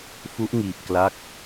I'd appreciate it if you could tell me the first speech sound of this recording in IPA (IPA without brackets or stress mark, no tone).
f